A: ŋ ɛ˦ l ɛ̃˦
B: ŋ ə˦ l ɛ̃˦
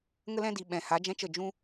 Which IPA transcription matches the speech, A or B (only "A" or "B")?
B